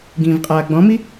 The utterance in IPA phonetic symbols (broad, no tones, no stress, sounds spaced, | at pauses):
ɡ ĩː v qʼ aː ɡ͡b ɔ̃ m i